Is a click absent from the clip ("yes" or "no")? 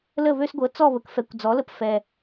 yes